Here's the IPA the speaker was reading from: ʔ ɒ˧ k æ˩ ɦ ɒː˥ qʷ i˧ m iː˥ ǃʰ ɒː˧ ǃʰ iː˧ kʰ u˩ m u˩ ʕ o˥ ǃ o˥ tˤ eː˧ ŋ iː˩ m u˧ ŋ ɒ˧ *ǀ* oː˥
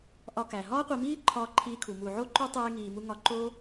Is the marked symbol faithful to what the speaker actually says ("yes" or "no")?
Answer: no